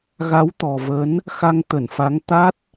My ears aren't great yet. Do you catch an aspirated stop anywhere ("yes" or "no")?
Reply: no